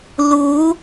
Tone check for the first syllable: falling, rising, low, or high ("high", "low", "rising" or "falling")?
rising